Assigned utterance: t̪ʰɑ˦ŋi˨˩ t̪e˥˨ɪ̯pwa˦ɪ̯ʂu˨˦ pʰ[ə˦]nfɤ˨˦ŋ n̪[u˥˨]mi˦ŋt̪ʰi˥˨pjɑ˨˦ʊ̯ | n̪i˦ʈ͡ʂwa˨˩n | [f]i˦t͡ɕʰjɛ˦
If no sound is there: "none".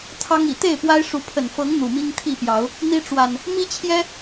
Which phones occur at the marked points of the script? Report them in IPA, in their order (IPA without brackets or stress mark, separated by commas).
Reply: ə˨˩, u˨˩, m